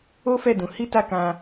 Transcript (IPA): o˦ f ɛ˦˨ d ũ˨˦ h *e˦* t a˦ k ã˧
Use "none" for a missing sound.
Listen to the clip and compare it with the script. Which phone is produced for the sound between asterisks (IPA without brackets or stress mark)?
i˦